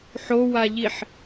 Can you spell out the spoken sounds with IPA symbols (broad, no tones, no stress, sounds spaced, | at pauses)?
ħ o w a ʎ i ħ